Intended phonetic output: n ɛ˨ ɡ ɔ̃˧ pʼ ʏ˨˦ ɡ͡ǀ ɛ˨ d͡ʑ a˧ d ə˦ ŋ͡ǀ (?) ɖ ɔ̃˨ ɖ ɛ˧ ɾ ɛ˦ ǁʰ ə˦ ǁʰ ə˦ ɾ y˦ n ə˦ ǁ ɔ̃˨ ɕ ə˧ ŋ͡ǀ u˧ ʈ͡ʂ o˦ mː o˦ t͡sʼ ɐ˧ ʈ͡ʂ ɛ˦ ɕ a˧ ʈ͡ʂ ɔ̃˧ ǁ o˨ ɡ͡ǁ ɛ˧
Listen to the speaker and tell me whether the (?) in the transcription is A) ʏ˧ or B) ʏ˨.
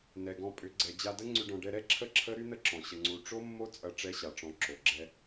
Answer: A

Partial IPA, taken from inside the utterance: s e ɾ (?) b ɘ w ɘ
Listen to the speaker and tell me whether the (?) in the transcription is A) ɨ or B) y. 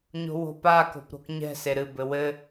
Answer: A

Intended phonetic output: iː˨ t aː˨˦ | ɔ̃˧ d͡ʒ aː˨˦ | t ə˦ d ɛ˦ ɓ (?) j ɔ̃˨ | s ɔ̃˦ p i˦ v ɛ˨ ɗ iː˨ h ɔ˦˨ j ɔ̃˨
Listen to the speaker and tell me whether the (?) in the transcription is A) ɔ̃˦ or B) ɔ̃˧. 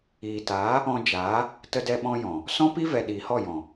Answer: A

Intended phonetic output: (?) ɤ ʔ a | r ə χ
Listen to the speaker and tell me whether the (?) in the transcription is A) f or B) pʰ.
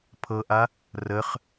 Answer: B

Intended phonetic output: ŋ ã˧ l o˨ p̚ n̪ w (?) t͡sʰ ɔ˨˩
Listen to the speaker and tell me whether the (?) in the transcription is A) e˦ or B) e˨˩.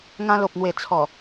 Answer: B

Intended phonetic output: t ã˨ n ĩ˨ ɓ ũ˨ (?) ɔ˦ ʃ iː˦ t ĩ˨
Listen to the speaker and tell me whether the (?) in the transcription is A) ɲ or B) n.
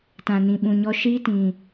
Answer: A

